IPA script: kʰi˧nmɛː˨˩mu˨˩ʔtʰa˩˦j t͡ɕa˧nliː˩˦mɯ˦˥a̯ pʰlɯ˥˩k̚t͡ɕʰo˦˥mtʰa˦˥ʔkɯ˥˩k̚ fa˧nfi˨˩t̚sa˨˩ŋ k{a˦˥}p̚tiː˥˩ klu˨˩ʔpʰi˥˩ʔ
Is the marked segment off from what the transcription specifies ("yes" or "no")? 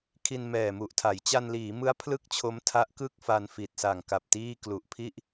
yes